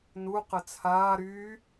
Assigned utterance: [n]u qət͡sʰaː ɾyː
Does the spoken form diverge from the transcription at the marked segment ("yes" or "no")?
no